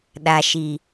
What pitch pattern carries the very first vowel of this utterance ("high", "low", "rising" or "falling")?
low